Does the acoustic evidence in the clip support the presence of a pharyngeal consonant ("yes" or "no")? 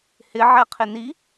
yes